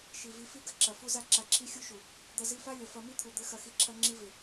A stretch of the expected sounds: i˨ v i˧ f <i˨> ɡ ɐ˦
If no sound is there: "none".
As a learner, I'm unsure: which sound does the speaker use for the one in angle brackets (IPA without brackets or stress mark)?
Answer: i˦